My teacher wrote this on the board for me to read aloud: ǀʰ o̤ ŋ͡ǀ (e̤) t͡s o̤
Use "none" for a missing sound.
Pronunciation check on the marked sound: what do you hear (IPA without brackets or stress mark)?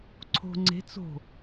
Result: e̤